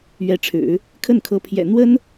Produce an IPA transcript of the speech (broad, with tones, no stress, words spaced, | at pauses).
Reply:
ɥɛ˧˥ʈ͡ʂʰɻ̩˨˩˦ | kʰə˥˩nkʰɤ˧˥pʰjɛ̰˨˩ n̪wə˥n